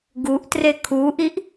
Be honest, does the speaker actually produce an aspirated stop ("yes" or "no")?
yes